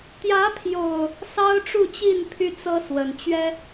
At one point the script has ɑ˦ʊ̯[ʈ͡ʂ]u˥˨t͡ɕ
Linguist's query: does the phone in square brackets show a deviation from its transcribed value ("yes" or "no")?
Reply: no